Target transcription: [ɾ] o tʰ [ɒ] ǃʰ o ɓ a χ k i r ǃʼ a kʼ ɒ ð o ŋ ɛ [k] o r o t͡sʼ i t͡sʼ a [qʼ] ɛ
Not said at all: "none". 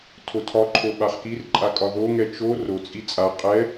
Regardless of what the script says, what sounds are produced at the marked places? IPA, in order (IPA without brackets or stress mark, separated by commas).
tʰ, ɒ, t͡ʃ, qʼ